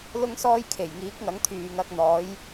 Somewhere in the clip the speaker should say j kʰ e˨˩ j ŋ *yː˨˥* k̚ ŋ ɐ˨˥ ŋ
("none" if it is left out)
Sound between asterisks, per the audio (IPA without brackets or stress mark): iː˨˥